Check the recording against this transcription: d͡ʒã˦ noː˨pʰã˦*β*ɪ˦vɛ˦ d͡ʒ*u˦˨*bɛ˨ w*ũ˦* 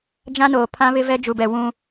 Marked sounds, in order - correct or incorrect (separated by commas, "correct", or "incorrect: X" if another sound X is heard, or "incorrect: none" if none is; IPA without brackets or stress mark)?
correct, incorrect: u˨, correct